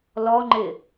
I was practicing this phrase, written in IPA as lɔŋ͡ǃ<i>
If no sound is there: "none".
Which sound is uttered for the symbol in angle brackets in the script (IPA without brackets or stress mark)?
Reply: ɪ